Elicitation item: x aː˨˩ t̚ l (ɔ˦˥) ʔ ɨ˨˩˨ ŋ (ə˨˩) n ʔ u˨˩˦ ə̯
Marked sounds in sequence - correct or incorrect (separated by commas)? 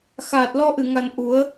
incorrect, incorrect